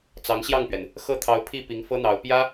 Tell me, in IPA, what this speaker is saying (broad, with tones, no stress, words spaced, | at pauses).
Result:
t͡sɑ˧˥ŋɕjɑ˥˩ŋpɥɛ˩n | xɤ˥˩ t̪ʰɑ˧˥ʊ̯ pʰi˥˩pi˧˥ŋ fɤ˥n̪ɑ˧˥ʊ̯ pjä˥